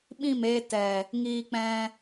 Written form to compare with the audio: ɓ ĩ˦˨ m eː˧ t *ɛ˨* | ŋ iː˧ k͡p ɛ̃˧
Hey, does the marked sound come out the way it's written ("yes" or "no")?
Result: yes